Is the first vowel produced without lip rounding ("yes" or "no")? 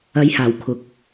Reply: yes